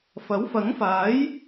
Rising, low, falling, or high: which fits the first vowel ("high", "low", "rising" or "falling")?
rising